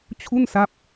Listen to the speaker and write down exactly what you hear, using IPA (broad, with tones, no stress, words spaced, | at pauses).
t͡ɕʰu˥˩nsa˦˥p̚